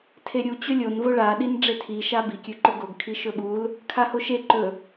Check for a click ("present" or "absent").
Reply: present